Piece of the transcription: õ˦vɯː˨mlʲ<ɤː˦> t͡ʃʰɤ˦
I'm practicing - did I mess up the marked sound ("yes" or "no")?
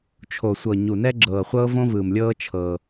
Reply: no